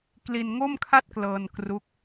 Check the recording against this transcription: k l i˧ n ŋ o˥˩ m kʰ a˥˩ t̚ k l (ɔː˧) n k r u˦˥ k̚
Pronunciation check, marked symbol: incorrect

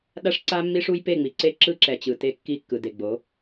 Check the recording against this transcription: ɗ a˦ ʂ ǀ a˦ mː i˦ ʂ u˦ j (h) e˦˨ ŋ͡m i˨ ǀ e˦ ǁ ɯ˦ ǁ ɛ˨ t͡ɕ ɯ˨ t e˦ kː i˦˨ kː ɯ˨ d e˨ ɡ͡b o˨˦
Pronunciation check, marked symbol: incorrect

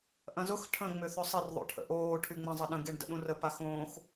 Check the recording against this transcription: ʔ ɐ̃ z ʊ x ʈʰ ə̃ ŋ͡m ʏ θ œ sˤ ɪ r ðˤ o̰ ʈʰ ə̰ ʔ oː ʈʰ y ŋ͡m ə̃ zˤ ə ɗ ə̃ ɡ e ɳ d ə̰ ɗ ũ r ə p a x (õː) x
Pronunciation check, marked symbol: correct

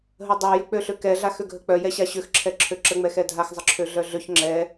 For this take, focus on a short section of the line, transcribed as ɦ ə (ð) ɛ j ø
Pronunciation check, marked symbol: incorrect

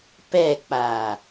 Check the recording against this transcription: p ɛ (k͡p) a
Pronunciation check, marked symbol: correct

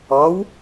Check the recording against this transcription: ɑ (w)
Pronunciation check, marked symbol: correct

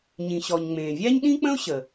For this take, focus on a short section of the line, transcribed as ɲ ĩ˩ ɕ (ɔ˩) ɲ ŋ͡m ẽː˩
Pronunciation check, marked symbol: correct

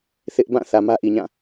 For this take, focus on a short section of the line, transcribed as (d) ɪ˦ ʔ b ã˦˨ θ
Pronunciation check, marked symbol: incorrect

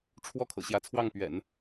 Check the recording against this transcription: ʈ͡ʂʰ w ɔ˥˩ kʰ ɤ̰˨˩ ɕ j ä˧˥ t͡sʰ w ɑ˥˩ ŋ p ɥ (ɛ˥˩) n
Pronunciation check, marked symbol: incorrect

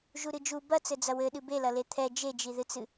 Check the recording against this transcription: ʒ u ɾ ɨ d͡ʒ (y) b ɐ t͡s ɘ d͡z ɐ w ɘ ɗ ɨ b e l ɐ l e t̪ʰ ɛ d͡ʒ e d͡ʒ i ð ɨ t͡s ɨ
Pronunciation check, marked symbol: incorrect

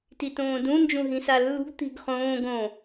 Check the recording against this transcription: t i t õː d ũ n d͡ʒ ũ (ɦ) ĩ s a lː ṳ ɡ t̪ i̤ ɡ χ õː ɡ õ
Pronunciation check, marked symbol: correct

